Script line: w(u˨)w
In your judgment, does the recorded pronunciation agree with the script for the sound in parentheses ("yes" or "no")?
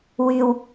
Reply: no